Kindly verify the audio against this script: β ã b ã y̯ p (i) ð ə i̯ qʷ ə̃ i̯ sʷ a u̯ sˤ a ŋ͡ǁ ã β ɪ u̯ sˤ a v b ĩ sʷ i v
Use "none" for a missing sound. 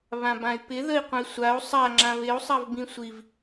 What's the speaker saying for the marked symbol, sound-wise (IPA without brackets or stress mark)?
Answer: ɪ